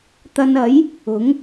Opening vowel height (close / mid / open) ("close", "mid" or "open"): open